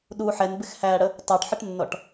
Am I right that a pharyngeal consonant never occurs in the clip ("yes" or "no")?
no